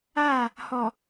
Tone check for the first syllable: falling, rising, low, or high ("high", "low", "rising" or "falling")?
falling